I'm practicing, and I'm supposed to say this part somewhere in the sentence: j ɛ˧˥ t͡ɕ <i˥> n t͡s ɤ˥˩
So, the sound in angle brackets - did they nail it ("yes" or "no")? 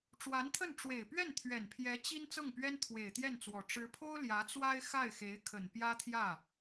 yes